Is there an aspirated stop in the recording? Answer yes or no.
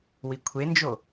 yes